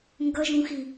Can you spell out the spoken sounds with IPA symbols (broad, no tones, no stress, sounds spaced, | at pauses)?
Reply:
ŋ ɡ ʌ ʒ ũ x i